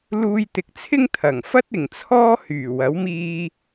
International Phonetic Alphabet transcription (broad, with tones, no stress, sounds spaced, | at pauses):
l uː˧ j t̪ ɪ˨˥ k̚ t͡sʰ ɪ˥ ŋ t̪ʰ ɐ˨˩ ŋ f ɐ˥ t̚ ɪ˨˩ ŋ t͡sʰ ɔː˥ h yː˨˩ w ɐ˨˥ w m iː˧